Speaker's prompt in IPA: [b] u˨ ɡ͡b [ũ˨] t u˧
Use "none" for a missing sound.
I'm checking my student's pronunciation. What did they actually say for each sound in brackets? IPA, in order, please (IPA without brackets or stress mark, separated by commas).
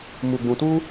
m, ũ˨